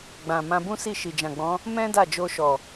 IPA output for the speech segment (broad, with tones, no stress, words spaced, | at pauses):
ɡ͡bã˨ mã˧bũ˦ si˦˨ʃi˨d͡ʒã˨ɡ͡bɔ̃˨˦ | mɛ̃˦ da˦˨d͡ʒo˧ʃɔ˨